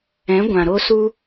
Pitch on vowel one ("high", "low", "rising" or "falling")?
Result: rising